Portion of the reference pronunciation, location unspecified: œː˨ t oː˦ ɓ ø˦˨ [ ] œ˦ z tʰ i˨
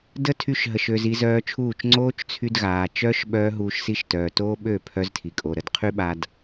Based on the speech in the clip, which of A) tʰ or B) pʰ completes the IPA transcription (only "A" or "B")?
B